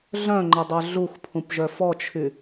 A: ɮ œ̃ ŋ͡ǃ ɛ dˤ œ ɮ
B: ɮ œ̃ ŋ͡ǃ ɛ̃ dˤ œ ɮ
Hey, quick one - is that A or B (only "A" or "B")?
A